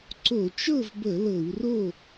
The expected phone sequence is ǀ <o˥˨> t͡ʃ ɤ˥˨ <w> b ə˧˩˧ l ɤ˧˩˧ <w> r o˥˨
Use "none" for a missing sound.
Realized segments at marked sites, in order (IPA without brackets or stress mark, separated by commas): o˧˩˧, v, w